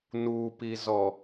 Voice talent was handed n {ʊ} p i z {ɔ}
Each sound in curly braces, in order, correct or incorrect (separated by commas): incorrect, correct